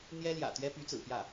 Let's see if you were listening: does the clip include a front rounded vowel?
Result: yes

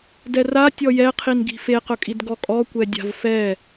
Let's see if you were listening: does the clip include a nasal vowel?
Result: no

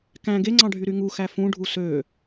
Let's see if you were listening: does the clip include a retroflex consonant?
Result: yes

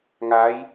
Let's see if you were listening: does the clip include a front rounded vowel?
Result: no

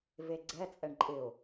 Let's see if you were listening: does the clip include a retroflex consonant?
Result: yes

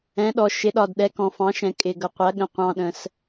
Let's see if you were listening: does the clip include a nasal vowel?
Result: yes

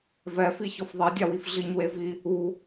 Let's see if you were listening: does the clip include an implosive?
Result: no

